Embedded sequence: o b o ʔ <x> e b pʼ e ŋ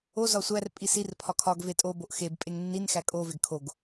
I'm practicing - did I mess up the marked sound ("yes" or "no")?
no